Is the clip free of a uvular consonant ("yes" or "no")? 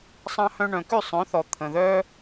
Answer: yes